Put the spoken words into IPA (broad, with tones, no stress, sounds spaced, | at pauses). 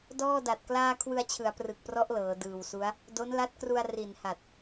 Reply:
d ɔː˥˩ d a˨˩ t̚ k l aː˥˩ kʰ w ɯ˧ a̯ t͡ɕʰ ɯ˩˦ a̯ p r ɯ˨˩ k̚ p r ɔ˦˥ ʔ l ɤː˩˦ d ɯː˨˩ w s u˦˥ a̯ | d o˦˥ n l a˦˥ t̚ k r u˧ a̯ r i˨˩ n h a˨˩ t̚